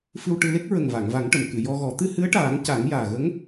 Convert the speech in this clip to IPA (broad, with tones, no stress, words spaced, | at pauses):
fɨ˧wʈɨ˧le˦˥k̚ ɹə˨˩ŋva˨˩˨ŋva˨˩˦ŋʈə˨˩˨m kɨ˨˩˨jɔ˧ɣɔ˨˩˦ t̪ɨ˧hɨ˧˥ə̯ʈaː˨˩˦ŋ ca˨˩˦ŋjaː˨˩ɣə˧˥ŋ